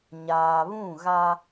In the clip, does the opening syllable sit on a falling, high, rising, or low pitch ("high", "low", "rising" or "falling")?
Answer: low